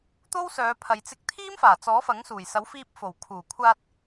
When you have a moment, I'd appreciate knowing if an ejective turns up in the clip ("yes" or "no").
no